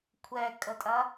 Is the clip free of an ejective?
no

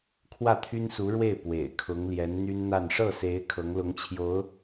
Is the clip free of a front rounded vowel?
no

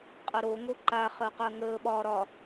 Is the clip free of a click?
no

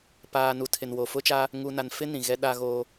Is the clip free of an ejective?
yes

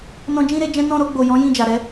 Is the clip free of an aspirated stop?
yes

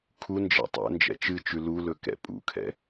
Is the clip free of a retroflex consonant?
yes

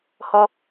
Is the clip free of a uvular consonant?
yes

